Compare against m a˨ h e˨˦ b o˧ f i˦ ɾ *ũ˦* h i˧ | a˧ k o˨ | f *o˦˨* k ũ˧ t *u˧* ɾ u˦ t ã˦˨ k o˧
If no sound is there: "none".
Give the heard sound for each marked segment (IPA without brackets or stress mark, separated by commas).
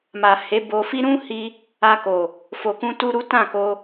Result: ũ˦, o˨, u˧